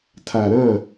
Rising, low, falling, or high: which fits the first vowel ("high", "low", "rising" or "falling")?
low